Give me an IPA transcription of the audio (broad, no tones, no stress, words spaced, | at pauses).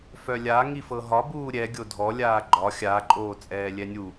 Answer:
fœlʲa ŋifɤɦɒ buːɾʲɛ ɡʲodʱɔ lʲaːɡ͡ǃɒ xʲa ǃʼoːt͡sʼɛːlʲɛnʲu